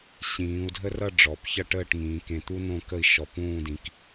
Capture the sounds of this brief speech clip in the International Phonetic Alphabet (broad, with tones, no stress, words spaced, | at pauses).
ɕĩː˩˧u̯dʱə˥rʌ˥˧ ɖ͡ʐɔ˩˧pçʌ˥˧ʈəː˥˧ʈ ŋĩː˩˧kẽ˧˩t̪u˥ nõ˥˧kə˥˧i̯ ʃɔ˧˩pũː˥˧dĩ˧k